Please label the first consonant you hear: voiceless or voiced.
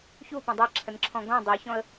voiceless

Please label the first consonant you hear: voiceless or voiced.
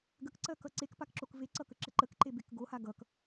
voiced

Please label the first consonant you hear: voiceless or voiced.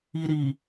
voiced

